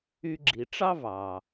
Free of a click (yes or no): no